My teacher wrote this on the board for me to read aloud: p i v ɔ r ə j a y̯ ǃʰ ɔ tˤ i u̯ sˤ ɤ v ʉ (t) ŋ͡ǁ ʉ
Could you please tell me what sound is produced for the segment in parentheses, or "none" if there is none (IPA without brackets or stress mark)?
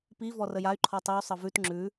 t